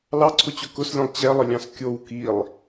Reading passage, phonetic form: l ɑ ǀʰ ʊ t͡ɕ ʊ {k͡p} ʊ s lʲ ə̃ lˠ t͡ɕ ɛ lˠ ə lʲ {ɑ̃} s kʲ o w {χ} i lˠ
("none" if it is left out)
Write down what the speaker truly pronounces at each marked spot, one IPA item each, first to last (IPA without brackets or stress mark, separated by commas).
k, ɑ̃, k